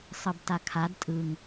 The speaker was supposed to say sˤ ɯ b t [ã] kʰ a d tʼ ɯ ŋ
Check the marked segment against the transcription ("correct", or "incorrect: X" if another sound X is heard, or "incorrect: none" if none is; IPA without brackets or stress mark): incorrect: a